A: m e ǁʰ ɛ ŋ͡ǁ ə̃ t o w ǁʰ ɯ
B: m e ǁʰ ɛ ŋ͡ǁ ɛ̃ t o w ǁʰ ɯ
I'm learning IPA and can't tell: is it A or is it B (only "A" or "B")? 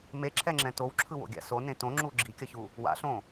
B